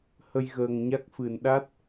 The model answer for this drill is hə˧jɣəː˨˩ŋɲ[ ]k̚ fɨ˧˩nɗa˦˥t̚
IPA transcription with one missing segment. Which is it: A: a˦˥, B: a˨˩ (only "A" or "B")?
A